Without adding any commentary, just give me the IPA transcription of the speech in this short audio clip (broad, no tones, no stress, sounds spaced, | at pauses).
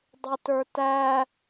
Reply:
dˤ ɪ t ə˞ t æ